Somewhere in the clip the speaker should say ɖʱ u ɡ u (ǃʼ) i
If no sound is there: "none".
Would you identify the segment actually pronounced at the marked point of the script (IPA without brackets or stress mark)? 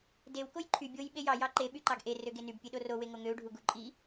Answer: ǃʼ